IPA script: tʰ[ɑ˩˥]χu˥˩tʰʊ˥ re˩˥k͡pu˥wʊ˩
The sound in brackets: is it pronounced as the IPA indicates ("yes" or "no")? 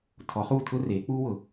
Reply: no